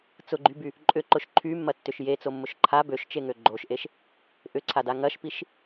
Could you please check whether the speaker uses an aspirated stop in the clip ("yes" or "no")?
yes